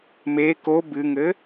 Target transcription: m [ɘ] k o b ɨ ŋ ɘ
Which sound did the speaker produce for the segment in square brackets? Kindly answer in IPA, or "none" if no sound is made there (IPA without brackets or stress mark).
e